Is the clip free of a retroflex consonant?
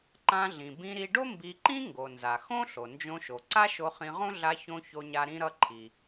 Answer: no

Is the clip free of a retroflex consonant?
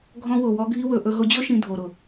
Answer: yes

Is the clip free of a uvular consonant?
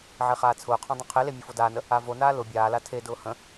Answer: no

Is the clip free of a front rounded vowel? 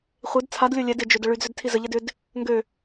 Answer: no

